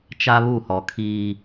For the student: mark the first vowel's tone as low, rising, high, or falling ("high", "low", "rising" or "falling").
high